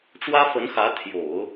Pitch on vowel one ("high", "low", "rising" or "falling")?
high